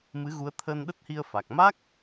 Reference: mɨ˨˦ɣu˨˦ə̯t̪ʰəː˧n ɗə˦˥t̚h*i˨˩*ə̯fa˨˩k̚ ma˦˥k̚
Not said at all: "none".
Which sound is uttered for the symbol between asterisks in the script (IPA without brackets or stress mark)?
i˧